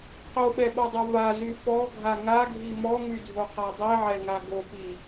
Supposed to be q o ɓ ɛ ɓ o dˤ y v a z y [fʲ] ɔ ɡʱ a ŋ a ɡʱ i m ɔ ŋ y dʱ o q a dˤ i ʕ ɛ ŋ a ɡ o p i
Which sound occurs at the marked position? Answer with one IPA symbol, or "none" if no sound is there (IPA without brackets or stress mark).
f